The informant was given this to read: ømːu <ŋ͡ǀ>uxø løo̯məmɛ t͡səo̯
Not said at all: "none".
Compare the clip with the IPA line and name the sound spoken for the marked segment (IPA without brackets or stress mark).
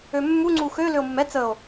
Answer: ŋ͡ǀ